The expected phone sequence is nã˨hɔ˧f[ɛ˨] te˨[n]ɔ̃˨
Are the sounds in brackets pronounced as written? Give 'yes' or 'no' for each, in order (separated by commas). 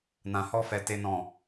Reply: yes, yes